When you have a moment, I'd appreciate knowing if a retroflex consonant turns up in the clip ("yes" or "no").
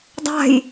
no